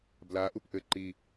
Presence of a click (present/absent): present